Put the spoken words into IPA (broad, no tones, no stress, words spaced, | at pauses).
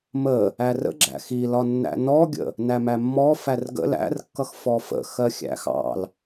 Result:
mə | ærə̰ ɡ͡ǁæ̰xilɒnːæ̰ nɔɡʲə̰ | næmæmːɔ færɡə̰ læ̰r kːʌxfɔfə̰ xɜxʲæ̰xɑ̰l